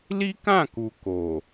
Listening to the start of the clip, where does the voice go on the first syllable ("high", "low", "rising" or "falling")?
high